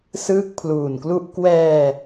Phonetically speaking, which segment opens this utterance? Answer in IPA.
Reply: s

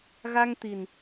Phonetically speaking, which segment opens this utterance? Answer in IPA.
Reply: ɣ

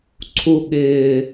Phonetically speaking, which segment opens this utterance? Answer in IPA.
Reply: ǀʰ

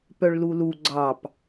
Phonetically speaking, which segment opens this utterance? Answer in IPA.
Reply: p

